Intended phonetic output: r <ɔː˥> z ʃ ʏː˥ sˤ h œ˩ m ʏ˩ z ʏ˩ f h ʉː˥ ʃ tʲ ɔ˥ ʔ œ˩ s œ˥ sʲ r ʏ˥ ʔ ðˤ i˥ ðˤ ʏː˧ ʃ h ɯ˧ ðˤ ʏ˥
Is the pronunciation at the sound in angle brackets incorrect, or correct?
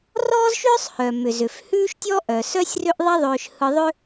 correct